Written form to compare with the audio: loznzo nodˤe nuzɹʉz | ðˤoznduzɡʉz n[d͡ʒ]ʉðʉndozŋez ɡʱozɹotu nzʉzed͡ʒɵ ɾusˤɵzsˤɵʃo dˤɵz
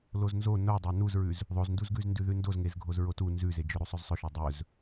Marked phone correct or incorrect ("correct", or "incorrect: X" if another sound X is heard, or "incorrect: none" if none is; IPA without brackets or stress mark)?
incorrect: d